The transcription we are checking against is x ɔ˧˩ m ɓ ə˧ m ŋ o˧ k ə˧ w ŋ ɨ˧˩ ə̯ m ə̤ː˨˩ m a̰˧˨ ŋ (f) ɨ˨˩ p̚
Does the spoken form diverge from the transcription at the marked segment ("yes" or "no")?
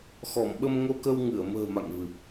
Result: yes